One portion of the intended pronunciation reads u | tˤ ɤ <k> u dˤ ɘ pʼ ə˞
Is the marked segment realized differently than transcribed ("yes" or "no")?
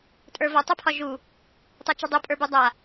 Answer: yes